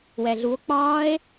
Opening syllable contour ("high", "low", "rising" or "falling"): low